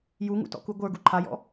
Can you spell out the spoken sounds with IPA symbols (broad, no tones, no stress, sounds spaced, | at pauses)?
j u ŋ ṵ t ɔ̰ k u ɡʷ ə˞ ɡ u ǃʰ a j ɔ̰